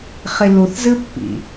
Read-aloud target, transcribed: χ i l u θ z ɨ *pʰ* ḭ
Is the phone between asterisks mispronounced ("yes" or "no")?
yes